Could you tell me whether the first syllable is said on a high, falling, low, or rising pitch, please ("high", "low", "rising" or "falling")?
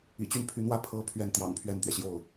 low